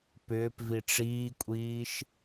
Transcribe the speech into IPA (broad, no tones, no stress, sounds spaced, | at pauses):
p ʏː p v i ʈ͡ʂ iː kʷʼ iː ʃ